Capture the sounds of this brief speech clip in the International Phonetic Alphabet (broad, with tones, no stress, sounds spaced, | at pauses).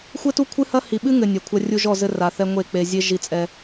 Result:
xʷ ɘ˦ t u˦ kʷʰ ɨ˦ h ɐ˦ h i˨ ɓ ɨ˦ ŋ ɘ˨ nʲ ɐ˨ kʷʰ ɐ˦ rʲ u˦ ʒ ɔ˦˨ z ɘ˦ r a˨ θ ɛ˦ ŋʷ e˦˨ k͡p e˨ zʲ e˦ ʒ i˦ t͡sʼ ɛ˦